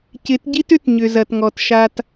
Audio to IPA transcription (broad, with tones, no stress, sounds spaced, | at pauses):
c ɪ˨˦ t ɟ i˦ t ʏ˦ t ɲ ʏ˨ z ɐ˨ t ŋ ɔ˨ t ʃ a˦ t